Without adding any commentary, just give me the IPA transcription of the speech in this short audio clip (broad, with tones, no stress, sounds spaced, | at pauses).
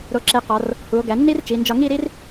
ɾ o˧ ǁ e˧ q ɒ˩˧ r | h u˩˧ o̯ ɡ æ˩˧ nː i˥ r t͡ʃ i˩˧ n d͡ʒ ɒ˧ ŋ i˥˧ ɾ i˥ r